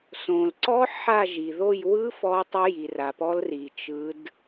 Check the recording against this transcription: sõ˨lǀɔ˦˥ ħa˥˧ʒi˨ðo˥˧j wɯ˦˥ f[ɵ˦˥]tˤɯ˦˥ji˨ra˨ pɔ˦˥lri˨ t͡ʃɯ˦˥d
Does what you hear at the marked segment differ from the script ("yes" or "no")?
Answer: yes